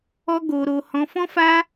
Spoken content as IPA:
ɔ˦ ɡ o˧ ɾ o˧ h ɔ̃˧ f ɔ̃˦ f a˦

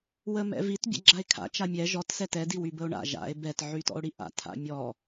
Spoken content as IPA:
w ə m ɛ̰ v i t bʲ ɛ̰ ɡ͡ǁ a e̯ kʰ a̰ t͡ʃ a mʲ ɛ ʒ ɔ t s ɛ t ɛ d i w y b ə o̯ ɳ a̰ ʒ a̰ e̯ b ɛ t ʕ y t ɔ̰ o̯ ɽ i ʔ a̰ tʰ a̰ mʲ ɔ

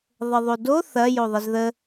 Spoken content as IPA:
ðˤ ə ðˤ o d o θ ɐ j o ðˤ ə z ð ə

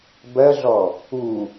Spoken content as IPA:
b ɜ ɮ ɔ | u

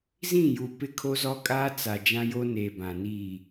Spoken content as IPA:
z ĩ˦˨ j u˨ p ɪ˦ kʰ o˦ z ɔ˦ kʼ aː˦ t͡s a˨ d͡ʒ ã˦ j o˦ n eː˨ b ã˨ n iː˦˨

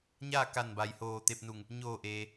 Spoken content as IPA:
ɲ aː˥˨ k a˧˩ n b a˩ j h oː˧˩ t̪ e˧ p̚ n u˧˩ ŋ | ɲ oː˧˩ ʔ eː˩

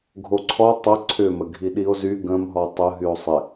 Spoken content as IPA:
ɡʱ o ǀʰ ɔ tˤ ə ǀʰ ʏ m ə ɡʱ i ɗ i o̯ z y ɡ ə̃ m ɦ ɔ tˤ ə ɦ y o̯ sˤ ɪ

